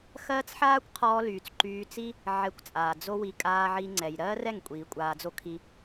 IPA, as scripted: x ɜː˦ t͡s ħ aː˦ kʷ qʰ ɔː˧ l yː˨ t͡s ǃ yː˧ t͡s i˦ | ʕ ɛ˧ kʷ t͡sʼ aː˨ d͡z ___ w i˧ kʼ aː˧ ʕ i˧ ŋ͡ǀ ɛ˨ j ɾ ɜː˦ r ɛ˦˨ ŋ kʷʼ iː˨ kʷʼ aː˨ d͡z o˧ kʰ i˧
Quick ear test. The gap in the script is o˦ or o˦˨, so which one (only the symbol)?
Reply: o˦